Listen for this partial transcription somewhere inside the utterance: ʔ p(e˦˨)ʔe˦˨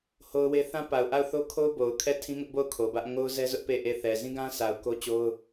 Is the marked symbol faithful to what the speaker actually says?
yes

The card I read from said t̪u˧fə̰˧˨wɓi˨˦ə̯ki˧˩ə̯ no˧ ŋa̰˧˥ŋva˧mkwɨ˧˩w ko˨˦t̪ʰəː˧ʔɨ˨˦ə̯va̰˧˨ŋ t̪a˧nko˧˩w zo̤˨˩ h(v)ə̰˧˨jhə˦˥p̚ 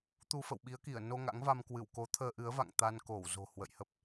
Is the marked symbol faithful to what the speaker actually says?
no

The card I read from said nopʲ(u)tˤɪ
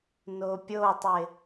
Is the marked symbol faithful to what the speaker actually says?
no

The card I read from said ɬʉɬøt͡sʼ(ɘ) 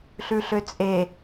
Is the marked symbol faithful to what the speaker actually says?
no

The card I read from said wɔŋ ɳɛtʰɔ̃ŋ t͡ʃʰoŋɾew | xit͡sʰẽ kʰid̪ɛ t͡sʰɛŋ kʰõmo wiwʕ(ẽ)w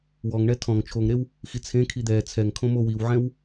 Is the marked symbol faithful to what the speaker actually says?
no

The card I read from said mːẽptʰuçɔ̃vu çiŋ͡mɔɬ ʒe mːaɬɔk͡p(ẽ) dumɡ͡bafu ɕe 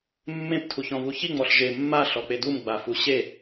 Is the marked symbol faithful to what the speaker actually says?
no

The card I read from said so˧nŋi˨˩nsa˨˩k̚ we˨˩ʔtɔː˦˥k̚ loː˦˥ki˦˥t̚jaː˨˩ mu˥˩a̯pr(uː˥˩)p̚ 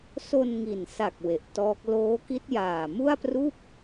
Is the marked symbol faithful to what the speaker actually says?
yes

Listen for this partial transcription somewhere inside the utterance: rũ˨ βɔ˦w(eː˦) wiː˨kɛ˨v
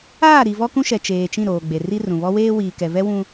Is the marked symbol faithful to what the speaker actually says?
yes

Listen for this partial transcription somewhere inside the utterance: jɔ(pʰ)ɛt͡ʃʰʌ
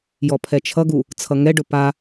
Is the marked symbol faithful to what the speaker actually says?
yes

